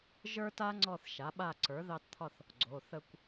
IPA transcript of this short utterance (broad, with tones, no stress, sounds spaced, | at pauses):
ʒ ə˞˥ t a˥ ŋ͡ǀ ɔ˥˧ θ ʃ a˩˥ ɓ a˥˧ ǀ ə˞˩˥ ð ɑ˥ t t̪ʰ ɒ˥˧ θ | ɡ͡ǀ o˩˧˩ θ ə˥˧ kʷ